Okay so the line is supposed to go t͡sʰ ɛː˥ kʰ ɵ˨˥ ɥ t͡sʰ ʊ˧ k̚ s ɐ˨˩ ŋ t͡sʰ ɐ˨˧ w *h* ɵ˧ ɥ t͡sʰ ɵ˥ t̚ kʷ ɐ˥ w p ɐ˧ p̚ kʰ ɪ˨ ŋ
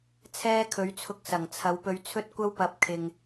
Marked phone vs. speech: incorrect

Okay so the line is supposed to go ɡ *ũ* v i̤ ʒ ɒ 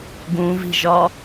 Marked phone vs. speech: correct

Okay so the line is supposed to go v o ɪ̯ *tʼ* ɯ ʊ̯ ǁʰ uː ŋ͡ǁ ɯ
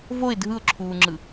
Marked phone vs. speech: incorrect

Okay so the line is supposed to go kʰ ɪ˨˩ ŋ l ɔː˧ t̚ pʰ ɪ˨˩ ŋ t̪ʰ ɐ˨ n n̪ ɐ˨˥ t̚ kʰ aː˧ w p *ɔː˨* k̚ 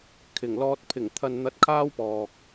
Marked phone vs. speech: correct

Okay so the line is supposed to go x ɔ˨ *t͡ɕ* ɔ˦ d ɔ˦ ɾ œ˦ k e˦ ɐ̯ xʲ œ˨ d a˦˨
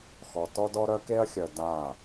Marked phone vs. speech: incorrect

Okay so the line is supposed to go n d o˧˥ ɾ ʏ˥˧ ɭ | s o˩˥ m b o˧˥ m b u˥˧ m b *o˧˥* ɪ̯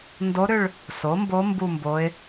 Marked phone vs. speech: correct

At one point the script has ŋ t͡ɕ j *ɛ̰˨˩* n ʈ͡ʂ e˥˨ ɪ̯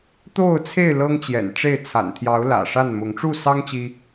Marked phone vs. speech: correct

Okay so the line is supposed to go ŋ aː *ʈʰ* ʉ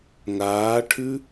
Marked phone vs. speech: correct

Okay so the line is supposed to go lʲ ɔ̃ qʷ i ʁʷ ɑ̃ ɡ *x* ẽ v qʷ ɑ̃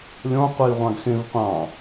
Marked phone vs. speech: correct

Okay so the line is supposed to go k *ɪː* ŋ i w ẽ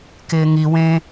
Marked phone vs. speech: correct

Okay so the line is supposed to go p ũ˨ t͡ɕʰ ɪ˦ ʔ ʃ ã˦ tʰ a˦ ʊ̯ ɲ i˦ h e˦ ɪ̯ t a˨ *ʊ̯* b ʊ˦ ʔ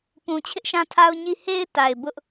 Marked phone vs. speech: incorrect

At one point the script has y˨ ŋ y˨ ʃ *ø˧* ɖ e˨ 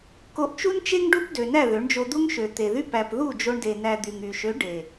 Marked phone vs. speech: incorrect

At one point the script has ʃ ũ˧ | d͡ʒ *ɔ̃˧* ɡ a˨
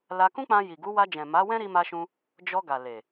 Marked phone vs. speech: incorrect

